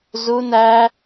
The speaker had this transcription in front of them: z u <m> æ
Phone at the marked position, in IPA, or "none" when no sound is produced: n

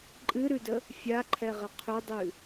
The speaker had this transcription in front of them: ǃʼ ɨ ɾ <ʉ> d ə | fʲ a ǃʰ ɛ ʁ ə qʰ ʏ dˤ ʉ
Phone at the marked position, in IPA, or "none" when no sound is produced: ʉ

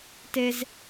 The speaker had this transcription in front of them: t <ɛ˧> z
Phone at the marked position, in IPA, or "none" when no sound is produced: e˧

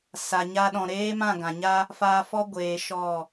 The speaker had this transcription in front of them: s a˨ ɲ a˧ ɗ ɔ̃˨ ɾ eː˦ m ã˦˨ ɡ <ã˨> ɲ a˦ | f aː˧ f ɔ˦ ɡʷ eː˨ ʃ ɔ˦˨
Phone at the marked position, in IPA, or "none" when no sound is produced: ã˨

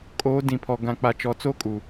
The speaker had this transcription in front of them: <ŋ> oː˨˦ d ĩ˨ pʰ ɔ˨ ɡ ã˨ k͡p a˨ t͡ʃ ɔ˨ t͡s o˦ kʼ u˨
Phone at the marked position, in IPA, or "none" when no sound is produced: kʼ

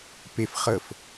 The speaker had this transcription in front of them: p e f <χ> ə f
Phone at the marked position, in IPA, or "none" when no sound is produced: χ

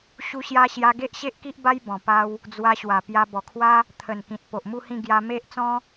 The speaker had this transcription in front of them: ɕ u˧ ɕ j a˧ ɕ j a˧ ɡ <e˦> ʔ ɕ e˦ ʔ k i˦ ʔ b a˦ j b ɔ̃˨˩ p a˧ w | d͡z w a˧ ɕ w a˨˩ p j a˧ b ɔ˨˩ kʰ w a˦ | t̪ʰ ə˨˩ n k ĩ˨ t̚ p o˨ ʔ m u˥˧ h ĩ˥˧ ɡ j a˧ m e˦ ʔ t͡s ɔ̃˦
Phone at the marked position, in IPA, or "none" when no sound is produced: e˦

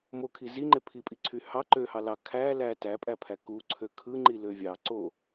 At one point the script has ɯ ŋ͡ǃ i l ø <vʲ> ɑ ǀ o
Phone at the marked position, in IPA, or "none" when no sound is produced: vʲ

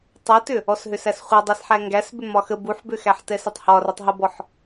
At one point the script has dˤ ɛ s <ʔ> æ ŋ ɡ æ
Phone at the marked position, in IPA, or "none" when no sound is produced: ħ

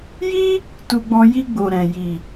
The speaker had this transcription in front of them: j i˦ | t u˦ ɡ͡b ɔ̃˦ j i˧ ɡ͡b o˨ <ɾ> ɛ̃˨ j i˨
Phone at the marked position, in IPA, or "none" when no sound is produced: ɾ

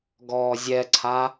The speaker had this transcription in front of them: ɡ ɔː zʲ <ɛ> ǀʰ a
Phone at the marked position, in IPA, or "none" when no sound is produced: ɛ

